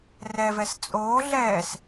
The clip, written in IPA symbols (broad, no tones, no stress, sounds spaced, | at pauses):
r ɛ v ɛ s t͡sʼ oː ɮ ɛː s